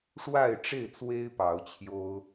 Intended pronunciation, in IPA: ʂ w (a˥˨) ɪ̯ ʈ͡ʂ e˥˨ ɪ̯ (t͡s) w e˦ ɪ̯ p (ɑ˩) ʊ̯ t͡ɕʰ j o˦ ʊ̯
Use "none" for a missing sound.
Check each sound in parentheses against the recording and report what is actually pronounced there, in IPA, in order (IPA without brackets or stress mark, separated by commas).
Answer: a˥˨, t͡s, ɑ˨˦